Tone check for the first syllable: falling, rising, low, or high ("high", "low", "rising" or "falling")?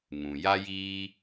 low